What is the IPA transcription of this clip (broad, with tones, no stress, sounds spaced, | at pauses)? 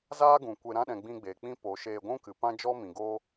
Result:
z aː˦ ɡ ũ˨ kʷ e˧ ɾ ã˧ ɗ ɛ̃˨ ɡ͡b ĩ˧ ɡ͡b eː˨ k͡p ĩ˦ p o˨˦ ʃ eː˧ ɡʷ ũ˦ k ɨ˨ p ã˦ d͡ʒ ɔ˦ m ĩ˨ ɡ oː˦